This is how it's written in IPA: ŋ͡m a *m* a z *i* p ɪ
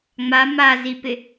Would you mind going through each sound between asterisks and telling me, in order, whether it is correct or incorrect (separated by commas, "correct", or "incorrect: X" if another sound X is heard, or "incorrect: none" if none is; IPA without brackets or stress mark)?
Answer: correct, correct